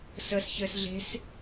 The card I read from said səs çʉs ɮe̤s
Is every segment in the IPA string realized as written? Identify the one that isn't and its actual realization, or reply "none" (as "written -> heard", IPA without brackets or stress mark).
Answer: ʉ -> ɘ